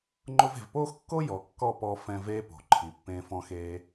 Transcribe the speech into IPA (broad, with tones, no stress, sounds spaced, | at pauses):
ŋ͡ǃ ʊ˧ v e̤˨ v p oː˦ x kː o˦ j ɔ˨ kː ɔ˦˨ p ɔ˧ f ɛ̃˧ v eː˦ p o̤˨ ǃʰ i˨ pː ẽː˧ f ɔ̃˧ x eː˧